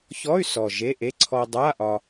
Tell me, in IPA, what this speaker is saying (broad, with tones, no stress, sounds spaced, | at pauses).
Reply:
ç ɔ˧˥˧ y̯ s ɔ˨˩ ʒ e˧˥˧ ʔ e˧˥˧ ǀʰ ɔ˧ dˤ a˧˥˧ ʔ ɒ˧